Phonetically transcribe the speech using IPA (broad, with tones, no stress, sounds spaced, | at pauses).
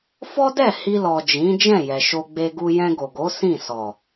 f ɔ˦ d ɛ˦˨ h i˧ l ɔ˨ d͡ʒ ĩ˨˦ d͡ʒ ɛ̃˦˨ j ɛ˨ ʃ o˧ ɡ͡b e˧ ɡ u˧ j ɛ̃˧ ɡ o˨ ɡ o˨˦ s ĩ˦˨ s ɔ˨